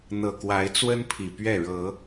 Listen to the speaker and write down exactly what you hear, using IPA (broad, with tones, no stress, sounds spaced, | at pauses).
n̪ ɤ˨˩ k w a˨˦ ɪ̯ t͡s w ə˦ n pʰ i˨˩ p ɥ ɛ˥˨ ɻ ɤ˨˦